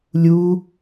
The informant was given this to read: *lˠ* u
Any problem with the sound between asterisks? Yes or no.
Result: yes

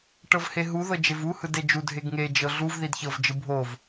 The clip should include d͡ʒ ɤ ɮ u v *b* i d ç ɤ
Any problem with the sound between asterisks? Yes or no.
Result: yes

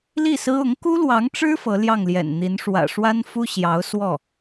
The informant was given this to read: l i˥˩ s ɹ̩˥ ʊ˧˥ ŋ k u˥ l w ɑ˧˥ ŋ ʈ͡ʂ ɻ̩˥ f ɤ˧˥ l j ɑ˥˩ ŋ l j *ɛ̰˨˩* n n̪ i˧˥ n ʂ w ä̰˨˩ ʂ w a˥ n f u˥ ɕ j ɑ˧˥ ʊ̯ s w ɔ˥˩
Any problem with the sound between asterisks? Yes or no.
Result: no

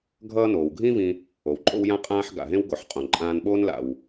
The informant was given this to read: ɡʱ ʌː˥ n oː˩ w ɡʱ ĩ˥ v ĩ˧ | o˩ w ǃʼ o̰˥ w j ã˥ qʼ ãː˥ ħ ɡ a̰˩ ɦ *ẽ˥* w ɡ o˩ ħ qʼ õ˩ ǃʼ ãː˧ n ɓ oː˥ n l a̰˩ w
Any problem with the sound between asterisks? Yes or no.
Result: no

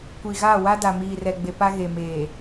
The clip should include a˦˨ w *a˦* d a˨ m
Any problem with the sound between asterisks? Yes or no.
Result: no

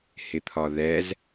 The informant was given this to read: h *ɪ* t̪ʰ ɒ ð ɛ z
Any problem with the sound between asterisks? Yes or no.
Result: no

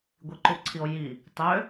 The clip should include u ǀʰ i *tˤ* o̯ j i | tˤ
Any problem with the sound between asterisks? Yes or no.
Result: yes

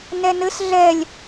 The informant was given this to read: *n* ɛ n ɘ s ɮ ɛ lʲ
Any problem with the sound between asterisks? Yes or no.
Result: no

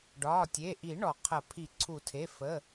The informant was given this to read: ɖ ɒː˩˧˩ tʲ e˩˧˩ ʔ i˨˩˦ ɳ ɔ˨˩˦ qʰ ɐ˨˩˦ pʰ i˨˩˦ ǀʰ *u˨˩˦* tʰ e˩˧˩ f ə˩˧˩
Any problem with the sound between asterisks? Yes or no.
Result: no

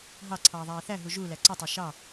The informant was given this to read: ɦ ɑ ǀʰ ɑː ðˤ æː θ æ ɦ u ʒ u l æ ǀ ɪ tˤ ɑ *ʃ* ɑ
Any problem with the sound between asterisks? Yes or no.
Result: no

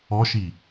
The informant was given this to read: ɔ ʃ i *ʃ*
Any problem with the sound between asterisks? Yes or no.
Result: yes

